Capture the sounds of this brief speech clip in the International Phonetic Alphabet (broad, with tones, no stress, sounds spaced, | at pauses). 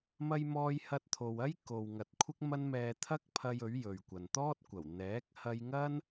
m ɐ˧ j m ɔː˧ j h ɐ˧ t̚ t̪ʰ o˨ w ɐ˥ j k o˨ w ŋ ɐ˨ t̚ kʷʰ ɪ˥ k̚ m ɐ˥ n m ɛː˧ t̪ʰ ɐ˥ k̚ pʰ ɐ˧ j ɵ˨˥ ɥ j ɵ˨ ɥ kʷ ɐ˨ n t̪ ɔː˥ t̚ kʷ ɐ˨˩ w n̪ ɛː˨˥ k̚ h ɐ˧ j ŋ ɐ˥ n